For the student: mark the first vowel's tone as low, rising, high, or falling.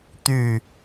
falling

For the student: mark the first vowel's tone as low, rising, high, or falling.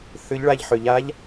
rising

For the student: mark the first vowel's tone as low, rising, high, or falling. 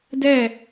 falling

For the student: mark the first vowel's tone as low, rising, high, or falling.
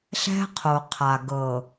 high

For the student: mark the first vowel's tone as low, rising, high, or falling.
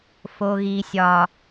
low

